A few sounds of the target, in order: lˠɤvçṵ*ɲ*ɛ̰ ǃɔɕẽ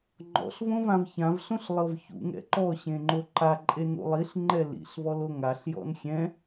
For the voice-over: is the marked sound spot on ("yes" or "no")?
no